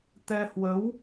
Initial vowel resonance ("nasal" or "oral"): oral